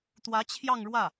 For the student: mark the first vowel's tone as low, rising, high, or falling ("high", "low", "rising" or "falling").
rising